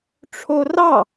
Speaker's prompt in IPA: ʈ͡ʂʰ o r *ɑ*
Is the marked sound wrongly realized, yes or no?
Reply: no